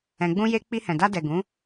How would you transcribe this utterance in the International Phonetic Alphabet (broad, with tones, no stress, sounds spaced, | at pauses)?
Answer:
ɛ̃˧ ɡ͡b ũ˦ j e˦ k͡p i˧ h ɛ̃˨ d a˧ d ɛ˨ ɡ ũ˨˦